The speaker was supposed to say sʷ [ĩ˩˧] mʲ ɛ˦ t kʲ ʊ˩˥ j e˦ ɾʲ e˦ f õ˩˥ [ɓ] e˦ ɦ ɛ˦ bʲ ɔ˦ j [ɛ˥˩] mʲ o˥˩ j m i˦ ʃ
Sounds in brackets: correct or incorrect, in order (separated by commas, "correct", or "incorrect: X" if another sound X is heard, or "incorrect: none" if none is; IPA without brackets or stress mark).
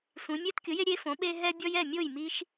correct, correct, correct